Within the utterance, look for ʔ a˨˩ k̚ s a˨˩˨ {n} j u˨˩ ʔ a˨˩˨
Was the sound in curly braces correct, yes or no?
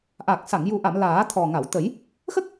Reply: no